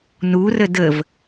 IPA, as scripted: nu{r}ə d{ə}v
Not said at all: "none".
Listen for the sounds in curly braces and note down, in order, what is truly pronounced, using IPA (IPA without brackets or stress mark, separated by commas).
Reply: r, ə